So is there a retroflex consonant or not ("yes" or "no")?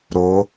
no